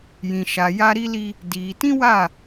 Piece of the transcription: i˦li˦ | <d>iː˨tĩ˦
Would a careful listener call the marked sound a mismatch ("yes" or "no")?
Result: no